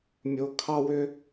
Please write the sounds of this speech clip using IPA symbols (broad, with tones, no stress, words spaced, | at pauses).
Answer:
mʲo˨kʰɑ˦wʏ˦